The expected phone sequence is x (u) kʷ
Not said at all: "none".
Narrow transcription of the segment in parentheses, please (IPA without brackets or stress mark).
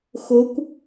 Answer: ʊ